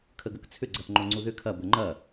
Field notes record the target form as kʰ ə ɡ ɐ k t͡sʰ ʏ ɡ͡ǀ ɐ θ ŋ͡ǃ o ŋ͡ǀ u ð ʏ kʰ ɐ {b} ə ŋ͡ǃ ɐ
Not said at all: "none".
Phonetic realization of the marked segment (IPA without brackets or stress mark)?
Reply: b